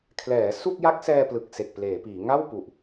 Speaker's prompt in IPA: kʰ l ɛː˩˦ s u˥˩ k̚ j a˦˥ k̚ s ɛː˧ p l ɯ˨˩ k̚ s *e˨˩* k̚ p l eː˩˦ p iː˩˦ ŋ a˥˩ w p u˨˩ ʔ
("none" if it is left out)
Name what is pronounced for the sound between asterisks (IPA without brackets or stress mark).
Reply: e˨˩